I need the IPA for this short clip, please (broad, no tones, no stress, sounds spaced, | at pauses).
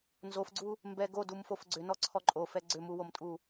n z o f ɡ͡ǀ u | m b ɛ ɡ o d u m f o f ɡ͡ǀ ʏ n ɔ ǀʰ ɔ ǃʼ o f ɛ ɡ͡ǀ ʏ m u w o m tʼ u